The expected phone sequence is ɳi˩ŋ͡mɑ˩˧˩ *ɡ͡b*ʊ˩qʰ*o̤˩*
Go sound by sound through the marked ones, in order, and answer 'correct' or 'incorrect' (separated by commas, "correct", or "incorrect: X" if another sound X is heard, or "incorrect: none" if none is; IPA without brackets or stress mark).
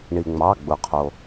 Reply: correct, incorrect: o˩